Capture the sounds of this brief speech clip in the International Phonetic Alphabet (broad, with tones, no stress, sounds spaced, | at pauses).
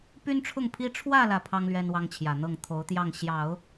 p y˥ n ʈ͡ʂʰ ʊ˥˩ ŋ pʰ i˥ ʈ͡ʂʰ w ä˥˧ l ä˥˩ pʰ ɑ˥ ŋ l ɥ ɛ˥ n w ɑ˥ ŋ t͡ɕʰ j ä˨˩ n̪ ɤ˥˩ ŋ t̪ʰ o˧˥ ʊ̯ t̪ j ɑ˥˩ ŋ ɕ j ɑ˨˩˦ ʊ̯